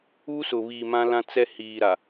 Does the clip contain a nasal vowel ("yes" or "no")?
yes